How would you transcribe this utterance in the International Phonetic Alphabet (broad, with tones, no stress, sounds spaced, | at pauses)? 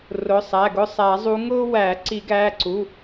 r ʊ˩˧˩ sˤ æ˩˧˩ ɡ ʊ˦˨ sˤ æ˨˩˦ zˤ u˨˦ ŋ ʊː˦ w æː˨˩˦ ǀ i˨˩˦ ɡ æː˩˧˩ ǀ u˩˧˩